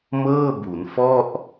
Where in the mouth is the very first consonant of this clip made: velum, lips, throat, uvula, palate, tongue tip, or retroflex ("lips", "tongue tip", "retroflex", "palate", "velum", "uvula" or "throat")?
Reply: lips